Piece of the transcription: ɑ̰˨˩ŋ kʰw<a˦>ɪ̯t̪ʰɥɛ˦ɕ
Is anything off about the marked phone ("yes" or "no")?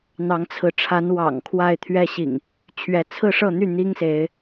yes